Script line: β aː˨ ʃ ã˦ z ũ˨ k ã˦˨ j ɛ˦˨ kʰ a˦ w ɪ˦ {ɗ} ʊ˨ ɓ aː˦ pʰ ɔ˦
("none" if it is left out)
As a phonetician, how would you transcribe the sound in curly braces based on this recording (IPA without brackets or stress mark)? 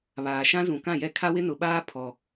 n